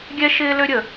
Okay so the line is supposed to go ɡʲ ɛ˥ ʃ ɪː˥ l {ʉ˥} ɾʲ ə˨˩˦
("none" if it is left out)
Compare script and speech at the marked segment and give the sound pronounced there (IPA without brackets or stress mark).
ø˥